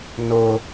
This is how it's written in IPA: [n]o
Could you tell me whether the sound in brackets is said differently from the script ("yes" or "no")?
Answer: no